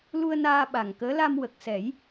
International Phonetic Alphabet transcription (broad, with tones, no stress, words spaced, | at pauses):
lu˧ə̯ naː˧ɓa˨˩ŋ kəː˧˥la˧m wə˨˩k̚ sɛ˨˩˦j